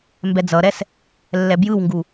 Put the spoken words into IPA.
mbɛd͡zʌɾɛs | lːɛbjɯwŋɡu

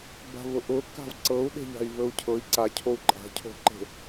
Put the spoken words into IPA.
ba̤vʊʔʊ ka̤vǀɤu̯ ɗe̤ʎa̤i̯vɵu̯cʰɤi̯ ǀacʰou̯ ǃʼa̤cʰo̤ǃe̤

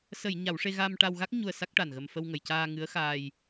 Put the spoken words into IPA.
sə˨˩˨j ɲa˨˩˦wʂe˧ ɣa˧m ʈa˧wɣa˦˥k̚ ɲu˧ə̯sa˦˥k̚ʈa˨˩nɣə˧m fə˧wŋə˨˩˨jcaː˧ ŋɨ˧˥ə̯xaː˧j

